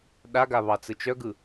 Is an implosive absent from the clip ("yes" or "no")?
no